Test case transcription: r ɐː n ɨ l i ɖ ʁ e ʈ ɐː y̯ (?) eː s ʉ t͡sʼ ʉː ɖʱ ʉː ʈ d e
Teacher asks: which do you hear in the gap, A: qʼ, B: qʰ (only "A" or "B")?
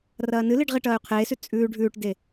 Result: B